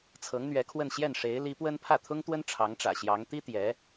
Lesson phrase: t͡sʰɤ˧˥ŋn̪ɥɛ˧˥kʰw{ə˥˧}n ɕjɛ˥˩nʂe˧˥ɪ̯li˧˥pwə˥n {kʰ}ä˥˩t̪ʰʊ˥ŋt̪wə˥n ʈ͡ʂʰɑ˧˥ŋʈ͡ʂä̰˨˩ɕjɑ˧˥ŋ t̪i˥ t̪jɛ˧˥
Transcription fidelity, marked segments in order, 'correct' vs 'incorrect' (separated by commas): correct, incorrect